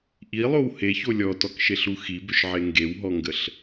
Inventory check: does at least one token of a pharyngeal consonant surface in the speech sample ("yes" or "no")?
yes